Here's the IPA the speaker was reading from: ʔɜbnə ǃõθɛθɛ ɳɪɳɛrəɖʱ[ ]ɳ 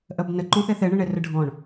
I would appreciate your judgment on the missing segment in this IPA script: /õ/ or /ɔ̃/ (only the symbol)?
ɔ̃